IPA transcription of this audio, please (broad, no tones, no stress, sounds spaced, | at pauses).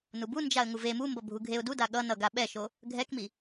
n u b u n d͡ʒ a ə̯ ŋ u v e m u m b ʌ bʱ u ɡʱ e ʊ̯ d u d a ɠ ʌ n ʌ ɡ a ɓ ɛ ʃ o | ɡʱ ɛ k m i